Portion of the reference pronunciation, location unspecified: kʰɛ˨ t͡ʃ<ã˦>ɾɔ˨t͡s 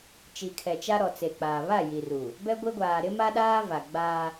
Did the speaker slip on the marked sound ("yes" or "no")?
yes